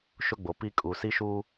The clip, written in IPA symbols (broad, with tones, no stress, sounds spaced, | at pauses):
ʃ ʊ˦ ɡ͡b o˨ p i˦ kʼ u˨ s i˦ ʃ uː˦